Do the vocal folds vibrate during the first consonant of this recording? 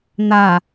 yes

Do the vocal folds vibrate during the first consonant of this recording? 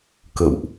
no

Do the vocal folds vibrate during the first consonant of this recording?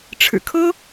no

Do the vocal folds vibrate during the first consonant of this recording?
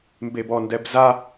yes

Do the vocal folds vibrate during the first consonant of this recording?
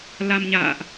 yes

